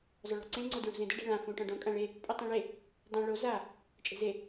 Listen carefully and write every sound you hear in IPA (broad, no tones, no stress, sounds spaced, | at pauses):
zˤ ʊ ɭ ɔ̤ ǀ ẽ ŋ͡ǀ o d ɹ ṳ z ẽ d ɪ ɖ e̤ ɭ ã f ũ ʈ ɔ̃ ɖ õ kʼ ã ɭ e | pʼ u tˤ ĩ ɭ e | dˤ õ ɭ o z a | t͡ʃʼ e̤ z e